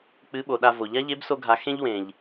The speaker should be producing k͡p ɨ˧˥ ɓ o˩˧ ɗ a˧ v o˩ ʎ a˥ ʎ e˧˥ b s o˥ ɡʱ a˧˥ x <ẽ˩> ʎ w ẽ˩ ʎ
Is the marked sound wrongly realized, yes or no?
yes